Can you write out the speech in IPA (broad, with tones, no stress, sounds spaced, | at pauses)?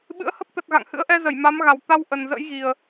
ɓ ɨ̰˧˥ ə̯ h ə˦˥ p̚ t̪ ə˨˩ t̚ ɣ a̰˧˨ ŋ h ɨ̰˧˥ ə̯ ʔ ɛ˧ z ə˧˩ j m a˨˦ m ɣ a˨˩ w t̪ a˧ w ʔ ə˨˩ n z ə̰˧˥ j ɣ i˨˩ ə̯